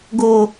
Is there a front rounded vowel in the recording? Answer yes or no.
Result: no